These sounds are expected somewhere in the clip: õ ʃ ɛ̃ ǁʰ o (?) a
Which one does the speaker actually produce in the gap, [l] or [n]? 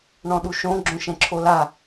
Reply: l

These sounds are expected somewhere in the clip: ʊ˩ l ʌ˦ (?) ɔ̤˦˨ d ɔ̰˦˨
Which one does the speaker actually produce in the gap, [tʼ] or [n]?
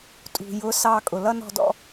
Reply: n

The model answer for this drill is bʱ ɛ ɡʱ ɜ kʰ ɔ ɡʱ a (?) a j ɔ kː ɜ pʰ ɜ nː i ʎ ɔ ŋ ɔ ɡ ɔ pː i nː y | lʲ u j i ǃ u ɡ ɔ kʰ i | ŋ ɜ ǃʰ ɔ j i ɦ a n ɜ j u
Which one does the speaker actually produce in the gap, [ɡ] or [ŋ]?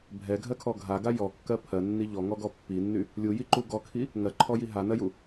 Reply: ɡ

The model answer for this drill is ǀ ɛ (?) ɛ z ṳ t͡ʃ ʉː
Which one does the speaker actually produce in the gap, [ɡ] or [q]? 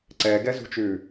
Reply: ɡ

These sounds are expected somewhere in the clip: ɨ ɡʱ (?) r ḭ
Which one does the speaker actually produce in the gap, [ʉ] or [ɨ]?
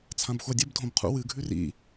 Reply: ʉ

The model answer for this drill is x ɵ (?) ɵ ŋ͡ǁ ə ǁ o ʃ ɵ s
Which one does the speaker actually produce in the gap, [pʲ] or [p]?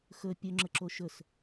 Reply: pʲ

